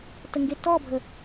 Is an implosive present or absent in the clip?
absent